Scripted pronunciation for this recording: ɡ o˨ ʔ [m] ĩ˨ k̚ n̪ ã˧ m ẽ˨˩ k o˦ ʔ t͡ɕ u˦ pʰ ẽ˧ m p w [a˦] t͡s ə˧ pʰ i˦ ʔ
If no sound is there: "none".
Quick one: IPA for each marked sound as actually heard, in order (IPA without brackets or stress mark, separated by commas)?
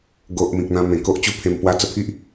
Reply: m, a˦